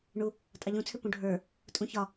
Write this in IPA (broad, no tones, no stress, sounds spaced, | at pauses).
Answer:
ɳ u | tʼ ɑ ʎ ũ t͡sʰ ʏ p ũ ɖʱ ə˞ | tʼ ũ ç ɒ